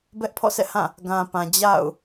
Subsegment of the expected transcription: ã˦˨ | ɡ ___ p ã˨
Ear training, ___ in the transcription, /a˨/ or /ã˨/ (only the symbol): ã˨